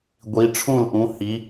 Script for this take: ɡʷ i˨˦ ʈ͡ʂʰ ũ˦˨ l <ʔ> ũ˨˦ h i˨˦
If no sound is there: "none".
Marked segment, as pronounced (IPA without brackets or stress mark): ʔ